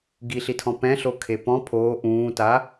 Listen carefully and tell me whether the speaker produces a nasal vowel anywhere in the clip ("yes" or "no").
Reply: yes